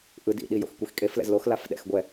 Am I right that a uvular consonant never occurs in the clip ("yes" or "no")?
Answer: yes